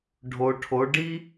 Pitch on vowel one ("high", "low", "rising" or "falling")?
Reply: low